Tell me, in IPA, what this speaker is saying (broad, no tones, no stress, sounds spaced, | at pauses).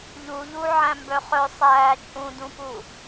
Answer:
ʎ u ʎ u ʕ æ̃ m b œ χ œ sˤ æː t͡ʃʼ ũ d ũ p u